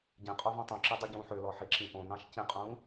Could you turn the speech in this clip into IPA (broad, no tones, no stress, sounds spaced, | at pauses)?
ɟ ĩ qʼ o v ɔ̃ tˤ ũ ǁ i dˤ u ɟ ũː ħ ø l ɔ ħ i ǁ ĩ ʔ õ n ɑ̃ ʃ c ĩ qʼ ũː